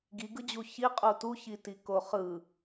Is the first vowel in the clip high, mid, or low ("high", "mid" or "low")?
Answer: high